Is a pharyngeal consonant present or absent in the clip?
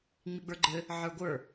present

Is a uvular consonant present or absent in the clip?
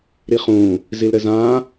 present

